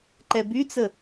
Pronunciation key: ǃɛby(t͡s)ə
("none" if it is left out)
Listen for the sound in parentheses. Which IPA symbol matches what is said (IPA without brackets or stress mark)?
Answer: t͡s